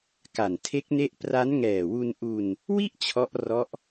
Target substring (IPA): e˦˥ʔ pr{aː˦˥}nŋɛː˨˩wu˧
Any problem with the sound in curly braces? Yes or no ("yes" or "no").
yes